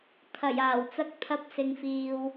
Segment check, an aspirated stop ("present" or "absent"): present